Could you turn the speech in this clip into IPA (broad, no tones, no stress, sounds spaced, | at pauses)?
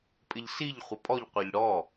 pʼ ɪ ʎ s i ʎ χʷ ə pʼ ɔ ʎ qʷ ɜ ʎ ɽ ɔ